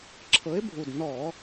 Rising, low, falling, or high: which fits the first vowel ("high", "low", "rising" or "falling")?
rising